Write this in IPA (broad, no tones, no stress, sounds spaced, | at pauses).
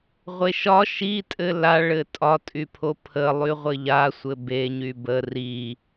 ʁʷ e ʃ ɒ ʃ i tʼ ɘ l a ɭ ɘ tʼ ɒ tʼ y pʰ o pʰ ə lˠ y ʁʷ ɘ ʎ a sʷ ɘ b e ɲ y b ə r i